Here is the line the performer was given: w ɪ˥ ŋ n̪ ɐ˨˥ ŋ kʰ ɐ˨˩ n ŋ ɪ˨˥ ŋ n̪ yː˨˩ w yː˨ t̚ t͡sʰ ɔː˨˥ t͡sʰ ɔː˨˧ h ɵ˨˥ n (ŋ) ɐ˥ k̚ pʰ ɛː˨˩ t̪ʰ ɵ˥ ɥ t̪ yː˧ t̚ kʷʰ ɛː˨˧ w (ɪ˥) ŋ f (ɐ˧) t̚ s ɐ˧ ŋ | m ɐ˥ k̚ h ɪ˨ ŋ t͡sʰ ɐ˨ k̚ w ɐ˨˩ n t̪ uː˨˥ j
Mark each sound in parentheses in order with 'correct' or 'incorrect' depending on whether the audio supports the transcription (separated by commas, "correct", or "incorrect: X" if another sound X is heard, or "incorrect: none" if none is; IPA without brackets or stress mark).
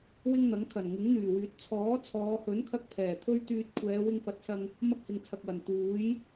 incorrect: kʰ, incorrect: ɪ˧, incorrect: ɐ˨˥